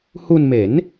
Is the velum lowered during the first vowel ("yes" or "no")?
no